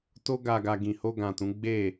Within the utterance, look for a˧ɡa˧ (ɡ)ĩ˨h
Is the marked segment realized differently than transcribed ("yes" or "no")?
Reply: no